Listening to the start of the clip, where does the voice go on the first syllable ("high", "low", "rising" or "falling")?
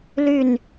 falling